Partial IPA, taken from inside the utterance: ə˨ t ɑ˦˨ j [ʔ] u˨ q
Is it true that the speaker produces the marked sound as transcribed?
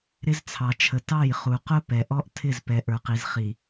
no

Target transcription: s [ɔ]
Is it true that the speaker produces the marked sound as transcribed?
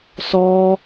yes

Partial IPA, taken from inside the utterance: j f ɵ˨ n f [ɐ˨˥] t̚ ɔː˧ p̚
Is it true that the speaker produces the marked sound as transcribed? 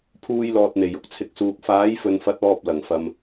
yes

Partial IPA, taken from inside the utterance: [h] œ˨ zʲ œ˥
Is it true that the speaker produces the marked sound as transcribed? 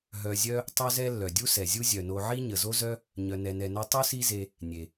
no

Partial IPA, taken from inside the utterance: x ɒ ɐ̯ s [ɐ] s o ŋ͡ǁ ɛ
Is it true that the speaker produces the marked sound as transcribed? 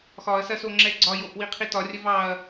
yes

